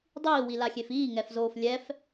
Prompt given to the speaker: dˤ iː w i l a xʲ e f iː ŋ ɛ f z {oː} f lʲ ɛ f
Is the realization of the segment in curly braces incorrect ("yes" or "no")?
no